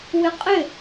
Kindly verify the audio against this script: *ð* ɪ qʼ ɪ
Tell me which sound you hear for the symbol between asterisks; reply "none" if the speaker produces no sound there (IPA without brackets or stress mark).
w